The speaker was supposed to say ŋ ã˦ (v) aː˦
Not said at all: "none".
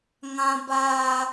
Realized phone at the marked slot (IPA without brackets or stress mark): b